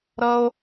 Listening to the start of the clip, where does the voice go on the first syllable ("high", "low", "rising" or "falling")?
high